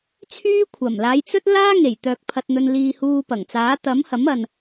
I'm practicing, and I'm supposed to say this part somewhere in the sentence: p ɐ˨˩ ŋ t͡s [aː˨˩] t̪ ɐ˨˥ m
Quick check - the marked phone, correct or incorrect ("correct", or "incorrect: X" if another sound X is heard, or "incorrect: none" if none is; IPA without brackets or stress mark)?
incorrect: aː˨˥